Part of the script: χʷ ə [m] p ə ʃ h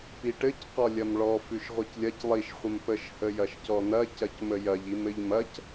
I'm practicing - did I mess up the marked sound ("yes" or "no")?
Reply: no